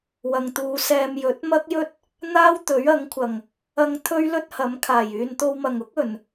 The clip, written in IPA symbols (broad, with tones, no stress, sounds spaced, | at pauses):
w ɐ˨ ŋ t̪ uː˨˧ s ɛː˧ m j ɵ˨˥ t̚ m ɐ˥ k̚ j ɵ˥ t̚ | n̪ aː˥ w t̪ ɵ˨˥ ɥ ɐ˨˥ ŋ kʷʰ ɐ˨˩ ŋ | ɐ˧ ŋ t̪ʰ ɵ˥ ɥ l ɵ˥ t̚ h ɐ˨˥ m kʰ aː˨˩ j yː˨ n t̪ o˧ w m ɐ˨˩ ŋ ʊ˥ k̚ ɵ˨˩ n